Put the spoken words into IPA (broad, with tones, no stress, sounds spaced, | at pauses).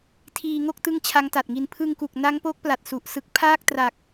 tʰ iː˧ ŋ o˥˩ k̚ t ɯ˦˥ ŋ t͡ɕʰ a˦˥ ŋ t a˨˩ t̚ ŋ i˧ n pʰ ɯ˧ ŋ k u˨˩ k̚ n a˦˥ ŋ p o˦˥ k̚ p l a˨˩ t̚ s u˨˩ ʔ s ɯ˦˥ k̚ pʰ aː˥˩ k̚ t r a˨˩ k̚